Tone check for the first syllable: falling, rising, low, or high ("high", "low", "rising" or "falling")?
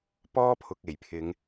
high